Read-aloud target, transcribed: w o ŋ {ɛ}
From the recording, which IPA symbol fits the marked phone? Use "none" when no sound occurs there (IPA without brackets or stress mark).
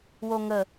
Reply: ə